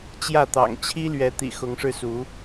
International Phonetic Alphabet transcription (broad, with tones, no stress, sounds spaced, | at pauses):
t͡ɕ j ä˥˨ t̪ ɑ̰˨˩ ŋ t͡ɕʰ i˦ l ɥ ɛ˨˦ t̪ ḭ˨˩ x ʊ˨˦ ŋ ʂ ɻ̩˧ s u˨˦